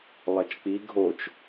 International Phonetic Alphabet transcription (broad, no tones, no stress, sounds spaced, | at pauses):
lˠ ɐ t͡ʃ k͡p i ɡʱ o t͡ʃ